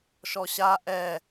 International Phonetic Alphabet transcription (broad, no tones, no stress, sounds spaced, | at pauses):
ʃ ɔ ɕ a ʔ ɛ